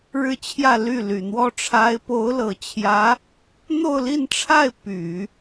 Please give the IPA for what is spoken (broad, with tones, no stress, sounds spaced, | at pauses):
ɻ ɻ̩˥˧ t͡ɕʰ j ä˥˧ l y˥˩ l y˨˩ n̪ w ɔ˥ ʈ͡ʂʰ a˧˥ ɪ̯ p o˧˥ ʊ̯ l ɤ˨˩ t͡ɕʰ j ä˧˥ | n̪ o˥˧ ʊ̯ l i˥˧ n ʈ͡ʂʰ a˥˩ ɪ̯ p y˨˩˦